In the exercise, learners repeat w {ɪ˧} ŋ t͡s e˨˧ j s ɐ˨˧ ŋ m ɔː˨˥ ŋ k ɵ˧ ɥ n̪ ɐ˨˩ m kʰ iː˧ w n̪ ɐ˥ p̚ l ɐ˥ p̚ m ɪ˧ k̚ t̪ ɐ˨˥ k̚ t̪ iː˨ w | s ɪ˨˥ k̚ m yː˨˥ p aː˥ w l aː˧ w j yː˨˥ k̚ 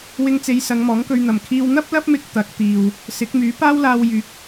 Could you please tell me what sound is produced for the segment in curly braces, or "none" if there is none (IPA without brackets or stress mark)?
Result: ɪ˧